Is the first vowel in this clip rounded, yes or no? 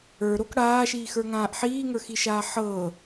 no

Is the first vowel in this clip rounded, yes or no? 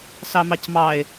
no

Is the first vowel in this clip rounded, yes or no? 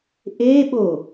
no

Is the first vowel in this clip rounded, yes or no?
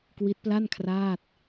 no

